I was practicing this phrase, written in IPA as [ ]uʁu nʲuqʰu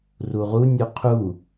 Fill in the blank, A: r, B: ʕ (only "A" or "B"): A